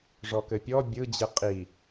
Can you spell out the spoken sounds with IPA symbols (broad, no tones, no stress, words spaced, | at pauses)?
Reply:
ʐɔkɘpʲɔ bʲɯd͡ʑɯ qʼi